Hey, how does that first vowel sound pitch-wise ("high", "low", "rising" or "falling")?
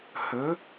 rising